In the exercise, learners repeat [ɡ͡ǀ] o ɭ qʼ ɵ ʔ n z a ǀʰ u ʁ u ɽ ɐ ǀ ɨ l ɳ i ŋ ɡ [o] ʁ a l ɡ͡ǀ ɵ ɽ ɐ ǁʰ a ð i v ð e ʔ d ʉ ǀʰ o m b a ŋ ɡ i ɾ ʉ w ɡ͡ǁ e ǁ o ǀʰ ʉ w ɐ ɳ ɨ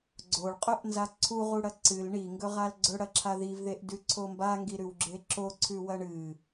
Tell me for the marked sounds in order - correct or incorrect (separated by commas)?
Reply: correct, incorrect